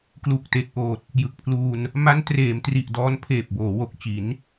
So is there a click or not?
no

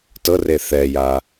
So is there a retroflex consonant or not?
no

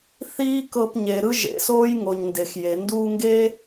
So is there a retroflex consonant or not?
no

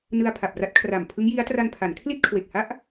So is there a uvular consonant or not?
no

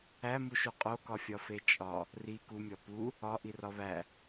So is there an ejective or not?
yes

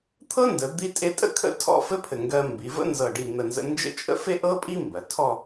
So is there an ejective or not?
yes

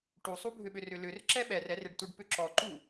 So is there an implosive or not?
yes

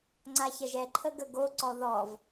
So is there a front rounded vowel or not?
no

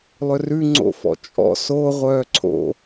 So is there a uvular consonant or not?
yes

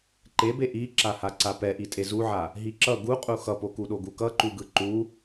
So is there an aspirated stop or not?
no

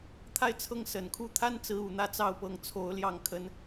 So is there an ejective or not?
no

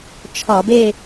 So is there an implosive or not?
no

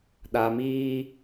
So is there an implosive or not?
yes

